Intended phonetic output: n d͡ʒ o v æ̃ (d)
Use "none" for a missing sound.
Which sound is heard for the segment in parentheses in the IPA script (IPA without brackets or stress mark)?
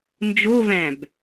b